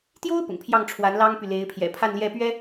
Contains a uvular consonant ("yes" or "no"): no